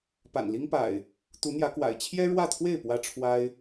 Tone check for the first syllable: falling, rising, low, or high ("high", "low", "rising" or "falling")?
low